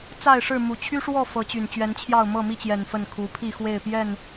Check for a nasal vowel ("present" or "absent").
absent